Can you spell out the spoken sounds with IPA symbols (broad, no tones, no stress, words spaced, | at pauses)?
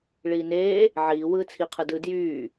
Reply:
ɭiːneː | ʕiː wɯːt͡sʰiqʰɯ dɯ djyː